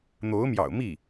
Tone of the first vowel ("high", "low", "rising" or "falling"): rising